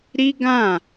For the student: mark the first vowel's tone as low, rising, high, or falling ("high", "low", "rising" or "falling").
high